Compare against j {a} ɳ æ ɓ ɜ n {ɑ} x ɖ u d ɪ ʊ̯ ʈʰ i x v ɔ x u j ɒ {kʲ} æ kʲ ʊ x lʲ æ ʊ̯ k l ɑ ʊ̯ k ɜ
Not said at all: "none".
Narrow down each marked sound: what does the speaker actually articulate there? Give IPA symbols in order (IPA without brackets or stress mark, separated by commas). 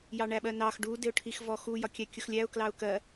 ɑ, ɑ, kʲ